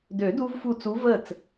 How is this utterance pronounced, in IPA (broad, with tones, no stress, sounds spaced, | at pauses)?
d ø˨˩˦ d u˧ v f u˧˩ t͡s u˧˥ v ə˥˨ t͡s